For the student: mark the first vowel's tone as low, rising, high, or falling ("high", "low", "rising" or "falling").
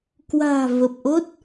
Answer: low